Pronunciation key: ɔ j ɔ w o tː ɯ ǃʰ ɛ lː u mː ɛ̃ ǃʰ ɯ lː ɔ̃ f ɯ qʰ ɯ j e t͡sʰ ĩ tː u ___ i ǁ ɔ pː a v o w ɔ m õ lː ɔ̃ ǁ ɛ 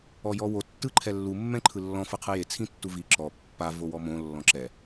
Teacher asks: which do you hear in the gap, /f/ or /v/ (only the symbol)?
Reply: v